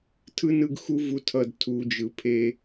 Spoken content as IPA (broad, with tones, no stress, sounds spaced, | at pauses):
tʰ ɯ˧ n ɯ˧ ɡ x u˧ v u˨ tʰ ʌ˦˨ d tʰ u˧ d͡ʒ ɯ˨ pʰ e˦